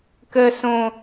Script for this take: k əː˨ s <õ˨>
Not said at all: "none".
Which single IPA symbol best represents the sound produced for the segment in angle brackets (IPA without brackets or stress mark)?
õ˨